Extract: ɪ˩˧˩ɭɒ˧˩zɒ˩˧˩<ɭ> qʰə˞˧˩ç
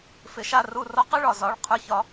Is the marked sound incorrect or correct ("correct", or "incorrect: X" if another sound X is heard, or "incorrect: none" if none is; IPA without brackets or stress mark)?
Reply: correct